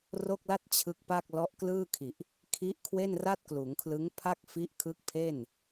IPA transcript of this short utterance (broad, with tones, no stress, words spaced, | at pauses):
ro˥˩k̚la˥˩t̚ t͡ɕʰɯ˦˥k̚pa˥˩k̚ lɔ˦˥ʔklɯː˥˩kʰi˨˩ʔ | kʰi˦˥ʔ kʰwe˥˩nra˥˩t̚kluː˩˦ŋkʰlɯ˦˥ŋ pʰa˥˩k̚fi˦˥ʔ kʰɯ˦˥k̚pʰe˥˩n